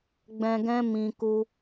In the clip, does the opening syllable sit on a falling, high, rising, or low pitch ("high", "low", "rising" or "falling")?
low